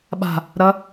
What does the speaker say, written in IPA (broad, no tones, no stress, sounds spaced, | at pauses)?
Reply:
ɓ a̤ | ɾ ɐ